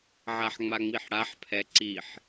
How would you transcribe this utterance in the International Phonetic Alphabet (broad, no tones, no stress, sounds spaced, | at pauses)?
ʕ a ħ ŋ͡m a ŋ͡m i ħ ɽ a ħ pʰ ɛ ǀ i ħ